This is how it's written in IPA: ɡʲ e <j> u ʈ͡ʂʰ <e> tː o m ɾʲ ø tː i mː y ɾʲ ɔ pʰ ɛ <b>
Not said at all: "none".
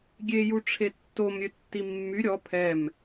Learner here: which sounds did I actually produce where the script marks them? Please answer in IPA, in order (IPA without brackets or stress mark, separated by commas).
j, e, m